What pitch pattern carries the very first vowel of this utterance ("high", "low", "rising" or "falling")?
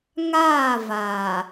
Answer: falling